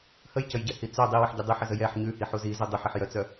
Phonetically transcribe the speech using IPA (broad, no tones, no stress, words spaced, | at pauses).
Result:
həjcəjɟɛhi t͡sœ dˤiwəħɟə dˤʉħəzə jɛħ ɲʉhiħu zizu dˤuħiħjœt͡sœ